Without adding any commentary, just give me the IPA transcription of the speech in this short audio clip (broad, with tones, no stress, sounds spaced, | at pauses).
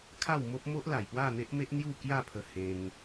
kʰ a˥˧ w m o˦ p̚ m o˦ ʔ l a˨˩ j p w a˥˧ n̪ e˦ ʔ m e˦ ʔ n̪ j u˥˧ k j a˥˧ pʰ ə˧ h ẽ˧ ŋ